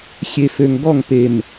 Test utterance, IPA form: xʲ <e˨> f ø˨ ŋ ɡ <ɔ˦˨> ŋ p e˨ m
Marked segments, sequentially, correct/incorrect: correct, correct

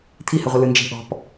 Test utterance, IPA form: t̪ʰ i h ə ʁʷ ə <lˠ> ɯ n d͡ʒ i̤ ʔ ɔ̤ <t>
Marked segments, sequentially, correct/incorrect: incorrect: l, incorrect: p

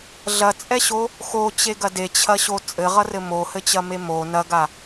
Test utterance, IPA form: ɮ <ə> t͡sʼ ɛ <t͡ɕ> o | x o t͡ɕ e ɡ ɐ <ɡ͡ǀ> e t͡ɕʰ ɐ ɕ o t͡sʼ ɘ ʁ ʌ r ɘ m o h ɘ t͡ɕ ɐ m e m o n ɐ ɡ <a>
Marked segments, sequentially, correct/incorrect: incorrect: ɐ, incorrect: ɕ, incorrect: d, correct

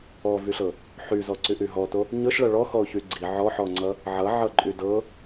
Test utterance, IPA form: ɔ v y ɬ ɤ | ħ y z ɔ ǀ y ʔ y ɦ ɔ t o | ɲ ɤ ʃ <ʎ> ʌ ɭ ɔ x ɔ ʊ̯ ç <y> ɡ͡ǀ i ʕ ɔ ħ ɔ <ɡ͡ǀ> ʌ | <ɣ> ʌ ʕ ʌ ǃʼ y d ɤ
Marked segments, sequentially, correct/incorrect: incorrect: ɭ, correct, incorrect: ŋ͡ǀ, incorrect: ʕ

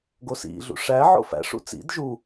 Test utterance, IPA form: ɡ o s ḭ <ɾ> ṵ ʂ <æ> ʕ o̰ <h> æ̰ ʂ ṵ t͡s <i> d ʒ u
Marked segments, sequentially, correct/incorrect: incorrect: ɮ, correct, incorrect: f, incorrect: ḭ

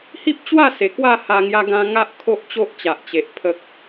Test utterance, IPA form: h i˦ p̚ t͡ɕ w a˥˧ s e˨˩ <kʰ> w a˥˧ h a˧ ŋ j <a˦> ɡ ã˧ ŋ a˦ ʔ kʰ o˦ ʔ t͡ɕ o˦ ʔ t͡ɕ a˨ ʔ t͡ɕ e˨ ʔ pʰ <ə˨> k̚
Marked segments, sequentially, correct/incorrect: incorrect: k, incorrect: a˧, correct

